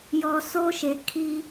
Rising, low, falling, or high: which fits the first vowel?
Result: low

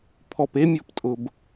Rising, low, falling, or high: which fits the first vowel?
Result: low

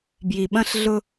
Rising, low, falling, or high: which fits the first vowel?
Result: low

